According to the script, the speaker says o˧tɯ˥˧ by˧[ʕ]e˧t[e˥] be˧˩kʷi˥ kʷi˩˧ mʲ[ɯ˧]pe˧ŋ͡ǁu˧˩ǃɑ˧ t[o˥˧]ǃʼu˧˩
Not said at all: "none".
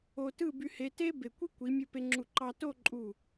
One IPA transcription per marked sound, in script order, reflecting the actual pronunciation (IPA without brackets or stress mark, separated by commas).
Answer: h, e˥, ɯ˧, o˥˧